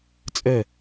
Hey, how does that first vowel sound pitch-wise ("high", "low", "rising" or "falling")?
falling